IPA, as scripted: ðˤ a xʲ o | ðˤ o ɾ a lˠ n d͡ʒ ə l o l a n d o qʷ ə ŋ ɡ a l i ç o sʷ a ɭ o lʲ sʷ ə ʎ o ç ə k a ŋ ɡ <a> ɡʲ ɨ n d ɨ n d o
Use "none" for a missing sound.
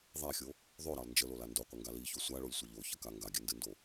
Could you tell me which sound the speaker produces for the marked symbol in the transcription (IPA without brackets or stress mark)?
a